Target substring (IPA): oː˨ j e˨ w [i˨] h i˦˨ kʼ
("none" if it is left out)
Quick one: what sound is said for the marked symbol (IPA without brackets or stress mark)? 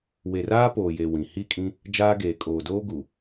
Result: ĩ˨